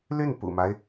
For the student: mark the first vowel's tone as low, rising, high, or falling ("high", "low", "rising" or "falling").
falling